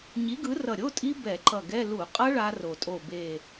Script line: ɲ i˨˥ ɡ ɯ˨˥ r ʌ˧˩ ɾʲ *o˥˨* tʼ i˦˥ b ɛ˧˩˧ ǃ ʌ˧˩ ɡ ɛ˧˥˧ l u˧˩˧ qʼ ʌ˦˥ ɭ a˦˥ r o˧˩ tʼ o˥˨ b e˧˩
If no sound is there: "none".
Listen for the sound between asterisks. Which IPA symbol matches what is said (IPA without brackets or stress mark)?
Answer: o˧˥˧